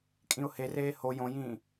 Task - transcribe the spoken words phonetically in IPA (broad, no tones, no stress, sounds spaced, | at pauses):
kʼ ĩ ʊ̯ h e r eː h o j õ j ĩː